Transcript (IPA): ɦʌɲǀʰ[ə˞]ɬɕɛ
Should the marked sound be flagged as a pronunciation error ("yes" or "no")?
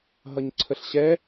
yes